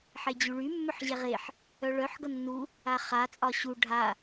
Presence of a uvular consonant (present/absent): present